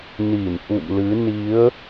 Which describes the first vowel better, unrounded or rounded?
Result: unrounded